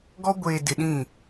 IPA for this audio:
ɡɔ˦ ɡʷeː˨dɪ˨ ɗĩ˦˨

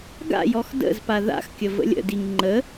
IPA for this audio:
ɡa̰jɔx də̰z paða̰xkʲə və̰lʲə̰diŋ ŋ͡ǃə

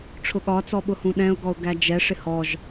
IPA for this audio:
ʈ͡ʂʰʊɠɒ t͡sɔɓʊhũɗɛ̃ʊ̯ ɡɔʊ̯ɡæd͡ʒɛ ʂɪhɔʒ

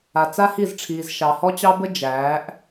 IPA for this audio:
a˨t͡sa˦hi˦˨zʈ͡ʂʰiː˨z ʃɑ˨hɔ˦t͡ɕɑ˦bə˦ d͡ʒæː˨˦ʔ

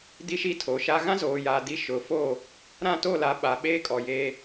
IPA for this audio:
di˦ʃi˦tʰo˨ʃa˦ ɣã˦zoː˨jaː˨di˨˦ ʃʊ˨˦fo˦˨ | ɾã˦˨to˦˨la˨˦ ɓa˨ ɓeː˦ kʼɔ˨jeː˦

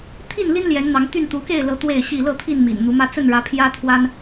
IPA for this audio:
t̪ʰi˥˨nli˦n ljɛ˨˦nn̪ɑ˨˦ŋt̪y˥˨n t̪u˨˦ke˥˨ɪ̯lɤ˨˦ t̪we˥˨ɪ̯ɕi˥˨ lɤ˥˨t̪ʰi˥˨nmḭ˨˩n n̪u˨˦mä˦ t͡sə˥˨nɻä˨˦ pʰjä˦t̪ʰwa˦n

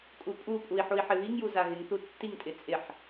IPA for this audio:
kʼupʼupʼui̯ ħui̯ħɪβiŋju zaɣɪŋθu tːiŋtʼɪ t͡sʼɪħ

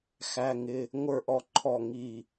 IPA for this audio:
xæ˧˥˧ŋɪ˧˥˧ | ŋʷə˞˦˨ʔɔ˦˨ǃʰɔ˦˨ ŋi˦˨

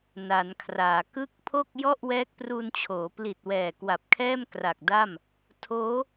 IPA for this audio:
na˩˦nkʰraː˩˦ kɯ˦˥k̚pʰo˥˩k̚ jɔ˥˩ʔwɛː˦˥k̚pruː˧nt͡ɕʰoː˩˦ pli˨˩t̚wɛː˨˩kwa˨˩p̚kʰɛː˥˩m kra˨˩k̚da˥˩m | tʰoː˦˥

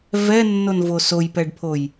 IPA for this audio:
vɛnːonvo sojpɛɖpʰoj

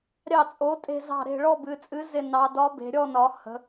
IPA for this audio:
ɾʲɑ˦˨t͡sʼo˨˥ tʼe̤˦˨zɑ̤˦˨ɾe̤˦˨ ɭɔ˦˨bɨ˩˧t͡sʼɨ˨˥ zɪ˦˨ nɑ˩˧dɒ˨˥ be̤˩˧ɾʲɔ˦˨nɒ˩˧ hə̤˩˧

